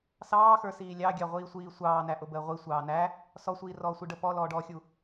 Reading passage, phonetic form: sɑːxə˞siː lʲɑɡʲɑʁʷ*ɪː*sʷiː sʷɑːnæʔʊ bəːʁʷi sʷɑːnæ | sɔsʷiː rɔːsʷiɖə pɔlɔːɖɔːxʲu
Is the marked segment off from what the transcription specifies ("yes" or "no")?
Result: yes